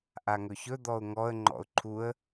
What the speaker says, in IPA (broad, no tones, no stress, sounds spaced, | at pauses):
ʔ a ŋ ɵ ç ɵ d̪ ɔ ʊ̯ ŋ ɔ ə̯ ŋ͡ǃ ɔ̰ ʊ̯ ǃʰ u ə̯